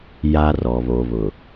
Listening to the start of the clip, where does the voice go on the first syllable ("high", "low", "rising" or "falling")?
high